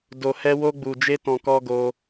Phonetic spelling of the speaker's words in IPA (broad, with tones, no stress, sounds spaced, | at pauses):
d o˨ h ɛ˧ w o˦ ɡ͡b u˨ d͡ʒ e˦ t ɔ̃˨ k ɔ˧ ɡ o˧